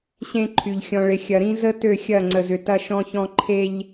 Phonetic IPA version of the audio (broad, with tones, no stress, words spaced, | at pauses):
ɕẽ˦ǃʰy˨ʎ xʲɔ̃˨ɭɪ˨ xʲɐ˨ɾĩ˦ zə˦ tø˦˨xʲɐ˦˨ŋ͡ǀə˨zʏ˨ tɐ˦ ʃɔ̃˦çɔ̃˦ ǃʰe˦ʎ